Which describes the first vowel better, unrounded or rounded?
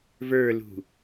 unrounded